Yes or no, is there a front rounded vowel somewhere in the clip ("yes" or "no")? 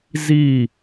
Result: no